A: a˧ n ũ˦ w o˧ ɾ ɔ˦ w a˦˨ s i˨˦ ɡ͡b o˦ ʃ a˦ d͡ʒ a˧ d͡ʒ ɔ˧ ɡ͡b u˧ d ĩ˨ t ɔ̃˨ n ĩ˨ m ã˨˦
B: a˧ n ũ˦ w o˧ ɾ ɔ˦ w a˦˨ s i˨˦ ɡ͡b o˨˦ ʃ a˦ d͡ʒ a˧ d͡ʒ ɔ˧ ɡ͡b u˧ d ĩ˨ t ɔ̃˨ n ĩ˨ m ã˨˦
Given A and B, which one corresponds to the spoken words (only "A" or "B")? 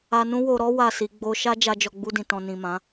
A